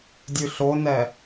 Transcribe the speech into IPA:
dʲ ʉ ɬ o n ɛ

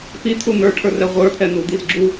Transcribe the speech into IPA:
p i t̪ʰ u n̪ ə˞ ʈʰ ə˞ r ɛ ʁʷ ə˞ t̪ʰ ɛ n̪ u d̪ i z ɡ͡ǁ u

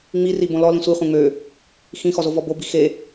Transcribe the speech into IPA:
ŋ͡m i r i b õ l ɔ l ĩ sʷ i χʷ ẽ ŋ͡m ø | x ĩ x ɔ z o v ɔ b o b i x e

